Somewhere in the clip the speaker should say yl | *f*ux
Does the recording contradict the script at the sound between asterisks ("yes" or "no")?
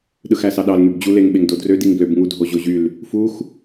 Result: no